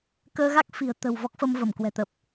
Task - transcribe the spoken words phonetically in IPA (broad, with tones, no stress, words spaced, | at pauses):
kəː˧ɣa˦˥k̚fi̤˨˩ə̯ t̪ə̤˨˩w vɔ˦˥k̚fə˧m və˧˩m kwɛ̤˨˩t̪ə˨˩p̚